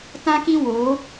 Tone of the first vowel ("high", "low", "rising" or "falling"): high